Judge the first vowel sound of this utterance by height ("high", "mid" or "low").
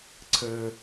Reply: mid